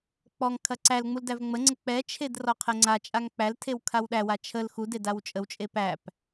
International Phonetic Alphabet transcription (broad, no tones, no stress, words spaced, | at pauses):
k͡pɔŋ kʰɐǀælŋ͡mul dævŋ͡məŋ͡ǀə k͡pɛt͡ʃʰed rɔqʰɛŋ͡ǀat͡ʃʼaŋ k͡pæltʰew kʰawɗæwa t͡ʃʰəl xud edawt͡ʃʼəwt͡ʃʼe pæp